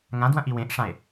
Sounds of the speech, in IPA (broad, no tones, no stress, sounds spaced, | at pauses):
ŋ ã d w ɐ̃ ʔ i w ẽ ʔ ʂ ã e̯